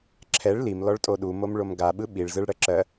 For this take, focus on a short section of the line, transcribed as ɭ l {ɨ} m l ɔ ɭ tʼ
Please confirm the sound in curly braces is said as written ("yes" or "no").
no